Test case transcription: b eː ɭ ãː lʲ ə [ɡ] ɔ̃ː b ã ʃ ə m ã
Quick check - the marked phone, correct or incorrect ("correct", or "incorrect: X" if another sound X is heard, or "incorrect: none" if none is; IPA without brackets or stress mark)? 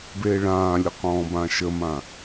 incorrect: q